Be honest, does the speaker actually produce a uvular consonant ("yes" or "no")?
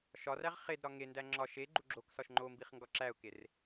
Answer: yes